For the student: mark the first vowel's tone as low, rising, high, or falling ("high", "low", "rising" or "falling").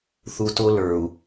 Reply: low